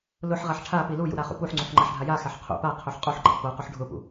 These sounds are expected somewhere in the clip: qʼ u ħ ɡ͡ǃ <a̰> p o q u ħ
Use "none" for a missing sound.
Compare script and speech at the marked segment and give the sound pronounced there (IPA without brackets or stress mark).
a̰